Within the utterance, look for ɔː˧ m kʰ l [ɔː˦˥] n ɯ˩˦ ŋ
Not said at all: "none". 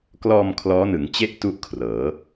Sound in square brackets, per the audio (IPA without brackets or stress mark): ɔː˦˥